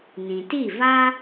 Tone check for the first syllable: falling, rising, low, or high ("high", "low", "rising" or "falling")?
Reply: low